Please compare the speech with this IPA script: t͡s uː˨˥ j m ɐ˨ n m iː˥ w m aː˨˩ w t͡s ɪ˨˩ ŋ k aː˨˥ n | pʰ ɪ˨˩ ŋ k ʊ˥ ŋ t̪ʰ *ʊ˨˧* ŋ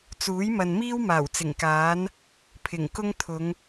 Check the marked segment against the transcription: correct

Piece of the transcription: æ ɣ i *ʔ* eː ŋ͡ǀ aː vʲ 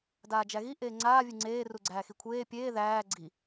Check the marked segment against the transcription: correct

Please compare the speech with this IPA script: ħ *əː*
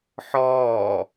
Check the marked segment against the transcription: incorrect: ɔː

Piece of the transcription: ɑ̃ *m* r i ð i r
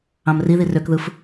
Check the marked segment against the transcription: correct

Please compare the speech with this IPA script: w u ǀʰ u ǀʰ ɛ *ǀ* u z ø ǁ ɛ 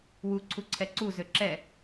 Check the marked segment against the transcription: correct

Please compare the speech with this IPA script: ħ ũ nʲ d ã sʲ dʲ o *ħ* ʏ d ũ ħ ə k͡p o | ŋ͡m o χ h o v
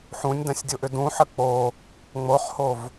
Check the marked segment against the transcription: incorrect: ʔ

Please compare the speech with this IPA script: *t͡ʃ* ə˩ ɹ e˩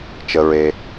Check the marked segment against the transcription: correct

